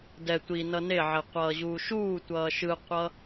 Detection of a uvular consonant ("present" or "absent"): present